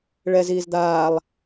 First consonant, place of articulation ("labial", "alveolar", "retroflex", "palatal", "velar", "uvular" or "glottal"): retroflex